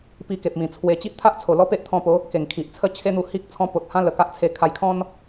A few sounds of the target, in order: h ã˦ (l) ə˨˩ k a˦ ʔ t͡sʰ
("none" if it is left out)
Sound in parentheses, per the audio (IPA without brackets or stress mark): l